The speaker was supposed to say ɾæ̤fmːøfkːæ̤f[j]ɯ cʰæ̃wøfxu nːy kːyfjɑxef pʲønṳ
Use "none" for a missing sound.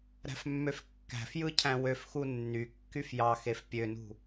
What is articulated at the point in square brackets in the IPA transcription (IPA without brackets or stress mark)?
j